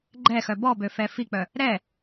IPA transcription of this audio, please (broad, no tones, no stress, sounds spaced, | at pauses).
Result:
ɡ͡ǃ ɛ x œ b ɔ b ø f ɛ f i k͡p œ | ɾ ɛ